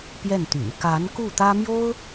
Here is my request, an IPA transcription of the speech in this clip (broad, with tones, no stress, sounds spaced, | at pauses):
p j ɛ˥˩ n t̪ y̰˨˩ n k a˧˥ n k u˥˩ t̪ ä˥ m j o˥ ʊ̯